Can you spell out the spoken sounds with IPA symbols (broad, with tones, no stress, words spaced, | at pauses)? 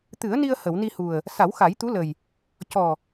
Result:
t̪ɨ˨˩˦ə̯ni˧ə̯ hə˨˩˨wni˧hu˨˩ə̯ | sa˨˩˦wxa˨˩˦jt̪u˧˥lə˨˩j | cɔ˨˩